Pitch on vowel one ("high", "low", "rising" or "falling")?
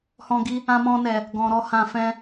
high